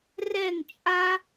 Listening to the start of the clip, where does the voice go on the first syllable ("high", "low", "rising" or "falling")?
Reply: falling